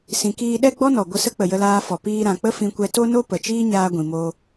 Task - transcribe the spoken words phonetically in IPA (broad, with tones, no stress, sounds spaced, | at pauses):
s ĩ˨ k iː˧ ɗ ɛ˦ ɡ͡b ɔ˦ n ɔ˨ ɡʷ ə˧ s ə˦ k͡p ə˨ j ə˧ l aː˧ f ɔ˨ p iː˧ ɾ ã˨ k͡p ə˦ f ĩ˧ kʷ ɛ˧ t o˦ n o˦ p ə˨ t͡ʃ iː˦ ɲ aː˧ ɡʷ ĩ˨ m o˧